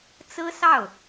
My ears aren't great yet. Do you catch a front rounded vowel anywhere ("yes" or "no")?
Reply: no